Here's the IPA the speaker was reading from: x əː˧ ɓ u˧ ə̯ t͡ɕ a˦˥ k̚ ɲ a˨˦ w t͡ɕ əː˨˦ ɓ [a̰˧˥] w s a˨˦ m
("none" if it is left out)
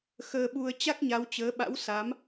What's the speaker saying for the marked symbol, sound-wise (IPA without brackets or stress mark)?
a̰˧˥